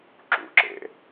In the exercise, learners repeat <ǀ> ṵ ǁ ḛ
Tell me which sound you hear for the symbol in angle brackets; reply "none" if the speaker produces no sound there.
ǁ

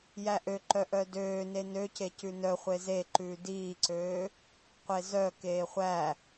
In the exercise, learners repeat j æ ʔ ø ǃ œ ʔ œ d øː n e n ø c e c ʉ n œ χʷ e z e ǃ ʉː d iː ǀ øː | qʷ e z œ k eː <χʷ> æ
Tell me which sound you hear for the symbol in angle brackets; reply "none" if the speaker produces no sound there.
χʷ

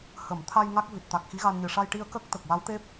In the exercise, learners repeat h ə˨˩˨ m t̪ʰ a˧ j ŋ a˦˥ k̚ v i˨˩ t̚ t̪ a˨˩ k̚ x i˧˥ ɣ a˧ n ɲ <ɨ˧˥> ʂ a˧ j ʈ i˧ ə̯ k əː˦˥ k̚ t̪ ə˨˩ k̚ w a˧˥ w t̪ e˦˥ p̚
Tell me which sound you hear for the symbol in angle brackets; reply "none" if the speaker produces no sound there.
ɨ˨˩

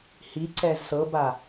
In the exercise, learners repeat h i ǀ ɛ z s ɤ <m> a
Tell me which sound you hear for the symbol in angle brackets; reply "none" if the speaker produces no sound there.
b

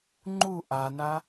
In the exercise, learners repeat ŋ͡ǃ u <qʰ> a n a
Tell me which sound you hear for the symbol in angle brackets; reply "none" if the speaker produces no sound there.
ʔ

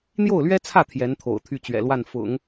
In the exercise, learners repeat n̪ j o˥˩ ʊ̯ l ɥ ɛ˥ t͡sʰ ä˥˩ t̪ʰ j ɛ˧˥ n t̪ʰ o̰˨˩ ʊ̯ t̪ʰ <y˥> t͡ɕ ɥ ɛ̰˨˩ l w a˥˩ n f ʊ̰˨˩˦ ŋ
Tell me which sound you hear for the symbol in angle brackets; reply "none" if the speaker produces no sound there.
y˥˩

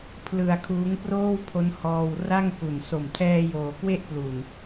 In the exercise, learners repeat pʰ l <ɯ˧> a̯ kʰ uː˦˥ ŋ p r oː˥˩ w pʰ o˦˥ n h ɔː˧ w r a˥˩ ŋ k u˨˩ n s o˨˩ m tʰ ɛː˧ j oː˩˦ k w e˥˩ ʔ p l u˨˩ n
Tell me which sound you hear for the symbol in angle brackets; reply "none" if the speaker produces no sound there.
ɯ˧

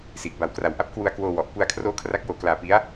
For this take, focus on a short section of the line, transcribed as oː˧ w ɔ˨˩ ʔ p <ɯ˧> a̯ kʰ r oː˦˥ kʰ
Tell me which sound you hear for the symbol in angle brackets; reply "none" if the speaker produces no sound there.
u˧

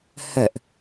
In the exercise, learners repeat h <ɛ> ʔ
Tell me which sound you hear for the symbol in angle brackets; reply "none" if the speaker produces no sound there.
ə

